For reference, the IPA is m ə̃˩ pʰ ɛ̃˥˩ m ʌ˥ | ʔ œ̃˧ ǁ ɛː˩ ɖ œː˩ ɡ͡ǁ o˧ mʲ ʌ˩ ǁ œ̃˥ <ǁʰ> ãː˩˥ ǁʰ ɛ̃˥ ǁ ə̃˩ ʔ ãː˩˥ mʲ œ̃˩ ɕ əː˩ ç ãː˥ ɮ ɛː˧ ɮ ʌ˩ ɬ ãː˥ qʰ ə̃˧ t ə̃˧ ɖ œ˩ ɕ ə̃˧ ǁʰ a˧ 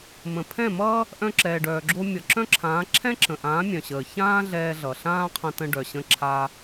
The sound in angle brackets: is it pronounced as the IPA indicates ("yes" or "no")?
yes